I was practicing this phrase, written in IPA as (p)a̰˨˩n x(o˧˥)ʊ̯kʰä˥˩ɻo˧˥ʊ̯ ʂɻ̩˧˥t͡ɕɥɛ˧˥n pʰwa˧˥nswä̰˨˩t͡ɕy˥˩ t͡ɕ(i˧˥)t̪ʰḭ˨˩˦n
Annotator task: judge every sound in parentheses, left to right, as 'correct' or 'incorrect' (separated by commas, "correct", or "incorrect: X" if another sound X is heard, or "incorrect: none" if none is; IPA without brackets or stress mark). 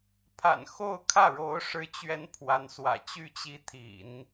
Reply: incorrect: pʰ, incorrect: o˥˧, correct